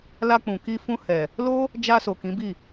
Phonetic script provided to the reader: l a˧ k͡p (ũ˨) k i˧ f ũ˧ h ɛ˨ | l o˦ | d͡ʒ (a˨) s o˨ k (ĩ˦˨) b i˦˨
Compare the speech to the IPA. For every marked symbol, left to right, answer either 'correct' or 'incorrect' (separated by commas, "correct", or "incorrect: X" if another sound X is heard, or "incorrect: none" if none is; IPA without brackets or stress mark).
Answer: correct, incorrect: a˧, incorrect: ĩ˨˦